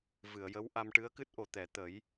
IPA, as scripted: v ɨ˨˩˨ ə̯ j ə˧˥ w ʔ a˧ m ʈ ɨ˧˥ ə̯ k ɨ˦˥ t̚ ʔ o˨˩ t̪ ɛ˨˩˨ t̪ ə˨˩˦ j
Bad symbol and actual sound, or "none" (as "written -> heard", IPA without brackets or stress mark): none